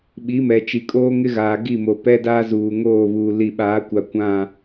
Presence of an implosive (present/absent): present